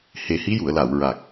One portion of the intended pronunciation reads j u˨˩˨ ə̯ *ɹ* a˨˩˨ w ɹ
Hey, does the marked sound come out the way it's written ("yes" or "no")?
no